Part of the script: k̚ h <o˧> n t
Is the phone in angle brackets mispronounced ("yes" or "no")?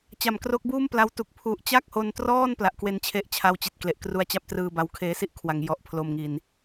no